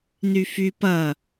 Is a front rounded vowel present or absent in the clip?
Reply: present